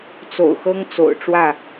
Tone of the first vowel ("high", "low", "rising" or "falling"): low